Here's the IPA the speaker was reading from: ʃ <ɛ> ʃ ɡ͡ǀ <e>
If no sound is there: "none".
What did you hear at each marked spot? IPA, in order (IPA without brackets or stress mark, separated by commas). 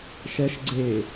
ɛ, e